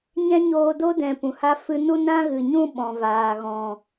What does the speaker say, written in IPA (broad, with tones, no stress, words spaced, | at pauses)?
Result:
ɲɛ̃˦ɲoː˧do˦dɛ̃˨ pũ˨ha˦ fɨ˧nu˦ nã˦ɣɨ˨ɲũ˦ ɓɔ̃˨vaː˨ɣɔ̃˨